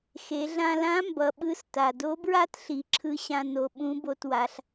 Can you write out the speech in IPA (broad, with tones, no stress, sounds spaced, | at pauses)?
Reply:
x e˩˧ ɮ ã˧ l ã˧˥ m b ʌ˩˧ ɓ ɯ˧˥ s t a˩ d o˧˥ b ɹ a˥ t ɬ i˩˧ ǁʰ ɯ˧˥ ɕ ã˧ n o˩˧ ɓ ũ˧˥ b o˧ t w a˩˧ ɬ